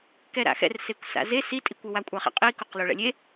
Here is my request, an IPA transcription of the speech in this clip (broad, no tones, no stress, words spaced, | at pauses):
kɛɾa̰xɛ̰r sekʷsa̰ze sitʼikʷɘ wakʷʼaχɛ̰qʼi kuqloɭɛ̰lʲe